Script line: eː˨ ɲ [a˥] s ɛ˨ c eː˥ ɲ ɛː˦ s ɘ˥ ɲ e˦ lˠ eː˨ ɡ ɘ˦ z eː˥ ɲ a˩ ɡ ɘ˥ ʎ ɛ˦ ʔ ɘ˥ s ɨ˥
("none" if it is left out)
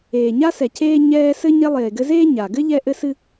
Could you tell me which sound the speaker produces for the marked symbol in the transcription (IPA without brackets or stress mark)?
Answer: a˥